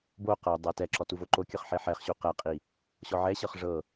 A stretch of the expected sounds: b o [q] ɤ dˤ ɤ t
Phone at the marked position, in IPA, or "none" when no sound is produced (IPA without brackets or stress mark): q